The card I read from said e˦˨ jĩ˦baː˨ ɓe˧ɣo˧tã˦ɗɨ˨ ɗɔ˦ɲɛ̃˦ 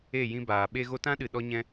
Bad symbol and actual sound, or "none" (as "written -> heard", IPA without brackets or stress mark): none